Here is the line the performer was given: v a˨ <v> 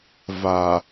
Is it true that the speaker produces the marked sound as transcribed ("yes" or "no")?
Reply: no